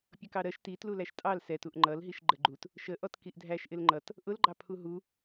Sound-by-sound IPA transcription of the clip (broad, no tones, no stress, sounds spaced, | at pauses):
pʲ ʌ k ɑ ɾ ɜ ʃ t i t l u l æ ʃ tʼ ɑ l s ɛ t u ʔ ŋ͡ǃ ʌ l ɦ i ʃ ɡ͡ǃ ə ɡ͡ǃ u t | ʃ ə ʔ ɔ t k i ʔ dʱ æ ʃ ʔ ɪ l ŋ͡ǃ ʌ t | ʔ ʊ l ɡ͡ǃ ɑ pʰ u ɦ u